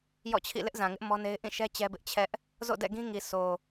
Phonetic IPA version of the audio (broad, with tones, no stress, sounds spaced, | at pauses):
j ɔ̰˦˨ t͡ɕʰ ḭ˦˨ l ɪ˦ ʔ z ã˨ ŋ ɪ˦ ʔ m ɔ˦ n e˦ ɪ̯ ʔ ĩ˦˨ ʃ ɛ˦ t͡ɕ ɛ˦ b ɪ˦ ʔ t͡ɕʰ ɛ˦ ʔ | z o̰˦˨ d ɛ̰˦˨ ɡ ĩ˦ ŋ i˨ s o˨